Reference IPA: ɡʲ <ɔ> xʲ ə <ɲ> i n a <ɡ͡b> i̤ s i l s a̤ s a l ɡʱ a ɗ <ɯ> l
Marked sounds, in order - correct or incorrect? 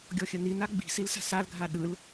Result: correct, incorrect, correct, correct

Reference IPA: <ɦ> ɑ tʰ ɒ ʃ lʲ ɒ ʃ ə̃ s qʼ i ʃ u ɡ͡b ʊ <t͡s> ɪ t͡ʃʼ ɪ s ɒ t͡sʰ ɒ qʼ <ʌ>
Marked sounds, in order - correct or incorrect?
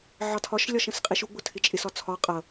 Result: incorrect, incorrect, correct

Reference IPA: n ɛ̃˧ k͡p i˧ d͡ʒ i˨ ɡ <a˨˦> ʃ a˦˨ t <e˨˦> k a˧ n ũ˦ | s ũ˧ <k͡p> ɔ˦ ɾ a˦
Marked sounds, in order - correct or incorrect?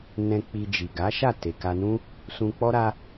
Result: correct, incorrect, correct

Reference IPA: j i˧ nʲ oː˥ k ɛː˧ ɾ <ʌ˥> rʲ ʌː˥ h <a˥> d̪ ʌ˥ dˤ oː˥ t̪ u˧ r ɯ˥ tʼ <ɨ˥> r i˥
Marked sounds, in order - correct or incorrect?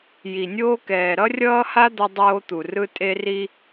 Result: correct, correct, incorrect

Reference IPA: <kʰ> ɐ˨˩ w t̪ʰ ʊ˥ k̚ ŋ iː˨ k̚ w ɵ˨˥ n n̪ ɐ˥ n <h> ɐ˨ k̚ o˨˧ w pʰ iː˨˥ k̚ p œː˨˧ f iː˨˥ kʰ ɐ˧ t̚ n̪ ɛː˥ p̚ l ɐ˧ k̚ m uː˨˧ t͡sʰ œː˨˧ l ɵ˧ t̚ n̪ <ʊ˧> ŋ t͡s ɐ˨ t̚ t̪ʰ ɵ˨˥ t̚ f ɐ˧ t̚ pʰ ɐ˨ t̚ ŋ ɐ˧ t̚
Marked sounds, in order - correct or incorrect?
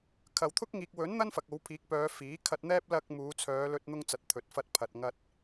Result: correct, incorrect, correct

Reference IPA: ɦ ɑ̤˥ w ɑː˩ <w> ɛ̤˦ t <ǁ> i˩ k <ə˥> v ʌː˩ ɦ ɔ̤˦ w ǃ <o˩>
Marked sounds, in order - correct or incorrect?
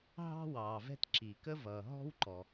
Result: incorrect, correct, correct, incorrect

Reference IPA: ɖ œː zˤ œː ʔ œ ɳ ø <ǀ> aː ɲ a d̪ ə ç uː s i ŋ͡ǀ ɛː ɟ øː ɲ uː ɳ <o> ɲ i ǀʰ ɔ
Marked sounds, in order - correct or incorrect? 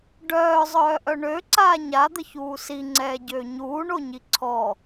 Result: correct, correct

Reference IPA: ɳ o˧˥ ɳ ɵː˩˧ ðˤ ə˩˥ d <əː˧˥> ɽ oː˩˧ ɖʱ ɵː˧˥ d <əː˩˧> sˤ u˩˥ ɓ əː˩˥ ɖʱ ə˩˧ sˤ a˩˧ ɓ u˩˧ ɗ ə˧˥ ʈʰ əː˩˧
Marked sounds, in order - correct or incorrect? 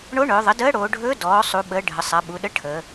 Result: correct, incorrect

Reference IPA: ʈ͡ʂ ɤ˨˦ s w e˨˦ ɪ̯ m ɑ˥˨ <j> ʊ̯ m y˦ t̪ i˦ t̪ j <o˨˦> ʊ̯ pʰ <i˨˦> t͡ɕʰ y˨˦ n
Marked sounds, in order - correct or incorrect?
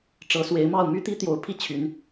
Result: incorrect, correct, incorrect

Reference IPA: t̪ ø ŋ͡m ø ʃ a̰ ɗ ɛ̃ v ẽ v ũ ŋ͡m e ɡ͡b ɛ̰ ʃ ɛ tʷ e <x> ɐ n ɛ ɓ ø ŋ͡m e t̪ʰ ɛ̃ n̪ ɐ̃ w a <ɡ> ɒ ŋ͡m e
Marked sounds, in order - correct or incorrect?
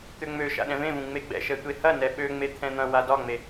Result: incorrect, incorrect

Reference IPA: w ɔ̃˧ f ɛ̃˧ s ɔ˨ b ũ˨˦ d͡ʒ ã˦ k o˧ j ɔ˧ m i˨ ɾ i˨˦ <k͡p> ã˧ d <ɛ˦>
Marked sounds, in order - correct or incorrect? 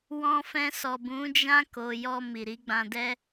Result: incorrect, correct

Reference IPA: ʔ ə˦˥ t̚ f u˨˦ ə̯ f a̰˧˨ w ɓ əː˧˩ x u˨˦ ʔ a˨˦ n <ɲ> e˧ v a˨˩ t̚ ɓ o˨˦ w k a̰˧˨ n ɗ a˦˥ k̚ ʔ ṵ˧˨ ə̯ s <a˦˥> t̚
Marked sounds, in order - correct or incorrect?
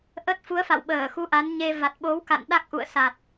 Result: correct, incorrect

